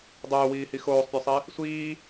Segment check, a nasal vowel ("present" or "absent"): absent